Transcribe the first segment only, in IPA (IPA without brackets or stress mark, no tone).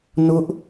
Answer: n